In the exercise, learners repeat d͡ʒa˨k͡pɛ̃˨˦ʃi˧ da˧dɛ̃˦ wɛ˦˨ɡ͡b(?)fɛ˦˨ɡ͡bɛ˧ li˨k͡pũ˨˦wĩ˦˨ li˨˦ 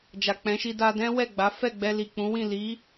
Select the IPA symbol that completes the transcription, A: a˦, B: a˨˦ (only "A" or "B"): B